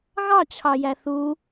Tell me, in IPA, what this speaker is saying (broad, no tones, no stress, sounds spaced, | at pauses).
ɣ ɑ t͡ɕʰ ɑ j æ θ u